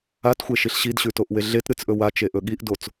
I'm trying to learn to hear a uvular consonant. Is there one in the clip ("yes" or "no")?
no